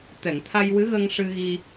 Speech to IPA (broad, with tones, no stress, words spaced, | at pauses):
t̪ɛ˨˩˨ŋt̪ʰa˧j wɨ˧˥ɣəː˧ŋ ʂɨ˧ɣi˧